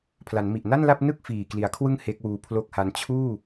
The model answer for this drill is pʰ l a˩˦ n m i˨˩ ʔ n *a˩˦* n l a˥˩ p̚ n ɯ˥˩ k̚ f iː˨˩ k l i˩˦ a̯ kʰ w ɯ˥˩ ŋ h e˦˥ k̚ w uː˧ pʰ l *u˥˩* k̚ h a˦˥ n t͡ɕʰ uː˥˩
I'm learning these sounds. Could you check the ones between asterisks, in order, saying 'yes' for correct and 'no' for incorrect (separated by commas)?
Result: no, no